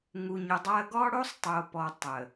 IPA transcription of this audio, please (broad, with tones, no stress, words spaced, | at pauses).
ŋu˨ɲʊ˨dˤa˦ɐ̯ ɡɔ˦ɽo˦sˤtˤo˨pɔ˨ tˤə˨